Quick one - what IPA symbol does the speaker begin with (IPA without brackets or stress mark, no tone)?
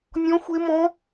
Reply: nʲ